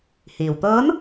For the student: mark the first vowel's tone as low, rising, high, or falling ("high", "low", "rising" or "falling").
low